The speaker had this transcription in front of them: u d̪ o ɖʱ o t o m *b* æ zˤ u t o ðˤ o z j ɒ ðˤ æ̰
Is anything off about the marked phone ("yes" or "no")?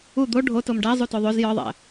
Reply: yes